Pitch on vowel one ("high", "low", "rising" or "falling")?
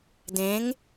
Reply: rising